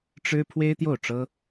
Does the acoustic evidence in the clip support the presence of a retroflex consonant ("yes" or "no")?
yes